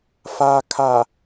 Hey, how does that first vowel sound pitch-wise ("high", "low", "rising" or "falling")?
low